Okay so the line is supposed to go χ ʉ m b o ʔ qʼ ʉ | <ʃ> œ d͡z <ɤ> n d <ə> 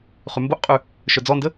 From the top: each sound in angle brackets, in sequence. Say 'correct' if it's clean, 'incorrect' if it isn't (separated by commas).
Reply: correct, incorrect, correct